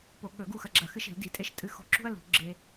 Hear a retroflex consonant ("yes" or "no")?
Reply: no